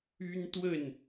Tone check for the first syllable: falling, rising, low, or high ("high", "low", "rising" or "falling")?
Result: high